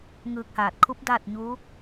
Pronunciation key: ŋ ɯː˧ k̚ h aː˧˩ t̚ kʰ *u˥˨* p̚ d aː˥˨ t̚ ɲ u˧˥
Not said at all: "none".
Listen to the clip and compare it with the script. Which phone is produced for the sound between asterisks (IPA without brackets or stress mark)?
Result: u˧˥